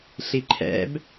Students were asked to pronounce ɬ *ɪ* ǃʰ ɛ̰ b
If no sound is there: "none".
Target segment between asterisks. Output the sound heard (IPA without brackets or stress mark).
i